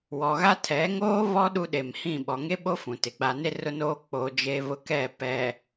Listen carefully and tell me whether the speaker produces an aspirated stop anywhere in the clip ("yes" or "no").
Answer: yes